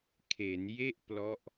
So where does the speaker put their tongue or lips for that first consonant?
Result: velum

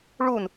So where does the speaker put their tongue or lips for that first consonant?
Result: retroflex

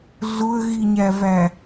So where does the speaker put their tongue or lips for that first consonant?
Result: tongue tip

